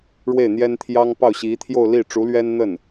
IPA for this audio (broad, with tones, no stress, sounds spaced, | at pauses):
ɻ w e˥˩ ɪ̯ n̪ j ɛ˥ n t̪ʰ j ɑ˥ ŋ p ɑ˥˩ ʊ̯ ɕ i˧˥ t̪ʰ j o˥˧ ʊ̯ l i˥˩ ʈ͡ʂ u˧˥ l ɥ ɛ˥ n n̪ ə˥˩ n